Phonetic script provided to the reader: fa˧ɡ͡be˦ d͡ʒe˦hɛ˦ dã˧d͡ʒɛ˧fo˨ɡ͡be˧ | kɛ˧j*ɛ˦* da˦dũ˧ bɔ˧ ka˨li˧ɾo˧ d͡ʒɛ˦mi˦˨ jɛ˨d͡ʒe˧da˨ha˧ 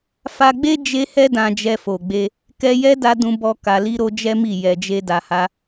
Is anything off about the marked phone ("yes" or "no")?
no